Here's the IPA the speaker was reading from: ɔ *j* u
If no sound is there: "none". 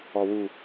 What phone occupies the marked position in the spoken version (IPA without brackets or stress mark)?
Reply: w